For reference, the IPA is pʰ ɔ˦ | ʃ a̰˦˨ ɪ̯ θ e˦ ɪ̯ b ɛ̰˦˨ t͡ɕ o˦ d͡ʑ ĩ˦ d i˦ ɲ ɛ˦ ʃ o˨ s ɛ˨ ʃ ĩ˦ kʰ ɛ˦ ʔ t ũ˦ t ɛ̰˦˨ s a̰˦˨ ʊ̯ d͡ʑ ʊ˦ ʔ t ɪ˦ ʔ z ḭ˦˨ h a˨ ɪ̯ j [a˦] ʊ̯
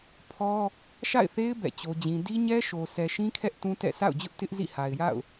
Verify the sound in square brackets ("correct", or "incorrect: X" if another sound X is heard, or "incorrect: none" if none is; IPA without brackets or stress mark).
incorrect: a̰˦˨